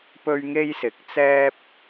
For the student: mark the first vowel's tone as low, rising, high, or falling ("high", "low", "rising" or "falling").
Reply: high